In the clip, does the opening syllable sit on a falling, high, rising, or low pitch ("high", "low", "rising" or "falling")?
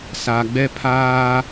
low